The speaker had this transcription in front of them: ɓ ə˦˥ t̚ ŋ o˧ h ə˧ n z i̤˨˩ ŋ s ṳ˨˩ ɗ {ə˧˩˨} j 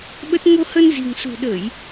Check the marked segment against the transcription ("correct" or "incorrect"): correct